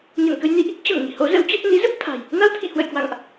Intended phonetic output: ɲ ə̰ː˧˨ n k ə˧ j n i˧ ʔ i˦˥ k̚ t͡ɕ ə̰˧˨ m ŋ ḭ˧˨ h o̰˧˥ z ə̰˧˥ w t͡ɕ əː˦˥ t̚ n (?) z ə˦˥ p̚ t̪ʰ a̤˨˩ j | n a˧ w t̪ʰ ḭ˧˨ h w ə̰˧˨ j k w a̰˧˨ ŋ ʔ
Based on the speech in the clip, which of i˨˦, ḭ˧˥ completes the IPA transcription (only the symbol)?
ḭ˧˥